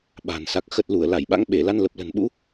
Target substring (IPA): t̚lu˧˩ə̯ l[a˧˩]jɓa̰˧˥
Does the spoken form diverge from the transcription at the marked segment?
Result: no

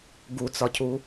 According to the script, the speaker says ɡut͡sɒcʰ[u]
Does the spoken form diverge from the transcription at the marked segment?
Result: no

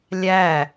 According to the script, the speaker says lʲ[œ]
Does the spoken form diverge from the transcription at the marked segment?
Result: yes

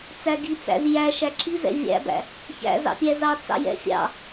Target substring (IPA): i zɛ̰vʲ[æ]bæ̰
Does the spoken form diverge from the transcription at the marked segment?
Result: yes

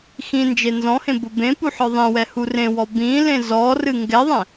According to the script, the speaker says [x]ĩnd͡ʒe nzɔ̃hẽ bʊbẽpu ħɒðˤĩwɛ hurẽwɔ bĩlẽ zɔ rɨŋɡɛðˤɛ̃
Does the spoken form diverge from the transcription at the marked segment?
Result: no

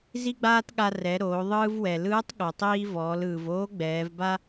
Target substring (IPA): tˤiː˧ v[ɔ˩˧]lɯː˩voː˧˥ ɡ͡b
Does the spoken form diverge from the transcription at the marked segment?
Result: yes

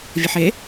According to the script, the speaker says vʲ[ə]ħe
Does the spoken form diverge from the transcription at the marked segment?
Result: no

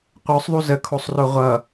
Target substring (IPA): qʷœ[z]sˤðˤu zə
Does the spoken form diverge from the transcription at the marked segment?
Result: yes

